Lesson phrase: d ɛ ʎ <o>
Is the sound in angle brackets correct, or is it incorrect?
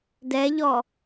incorrect